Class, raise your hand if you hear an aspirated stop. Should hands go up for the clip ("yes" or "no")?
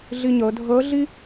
no